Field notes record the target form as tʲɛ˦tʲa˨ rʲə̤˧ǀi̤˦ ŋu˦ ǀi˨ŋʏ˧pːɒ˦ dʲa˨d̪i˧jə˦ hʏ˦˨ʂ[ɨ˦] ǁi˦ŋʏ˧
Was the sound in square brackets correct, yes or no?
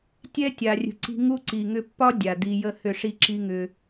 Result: no